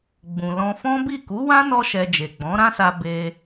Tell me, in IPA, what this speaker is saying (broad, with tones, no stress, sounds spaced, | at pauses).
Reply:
ɡ͡b ũ˨ l ɔ̃˧ f ɔ̃˦ b i˦˨ k u˨˦ w ã˦ n ɔ˧ ʃ ɛ˧ d͡ʒ e˨ ɡ͡b ɔ̃˨˦ ɾ ã˦ s a˧ b e˧